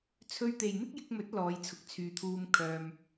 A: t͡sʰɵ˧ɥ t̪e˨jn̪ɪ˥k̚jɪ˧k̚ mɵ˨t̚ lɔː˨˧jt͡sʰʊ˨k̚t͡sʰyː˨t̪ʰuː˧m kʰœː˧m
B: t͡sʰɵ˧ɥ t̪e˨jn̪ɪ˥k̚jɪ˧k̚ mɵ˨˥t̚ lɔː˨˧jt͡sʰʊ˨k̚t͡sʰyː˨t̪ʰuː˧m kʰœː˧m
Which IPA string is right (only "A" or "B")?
B